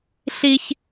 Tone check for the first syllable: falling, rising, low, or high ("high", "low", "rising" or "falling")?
high